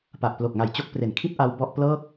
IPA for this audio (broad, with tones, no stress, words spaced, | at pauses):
pa˨˩ʔplo˨˩k̚ŋa˨˩j t͡ɕo˦˥k̚ pre˩˦nkʰi˦˥t̚ʔa˧w bɔ˥˩ʔ plɤː˥˩k̚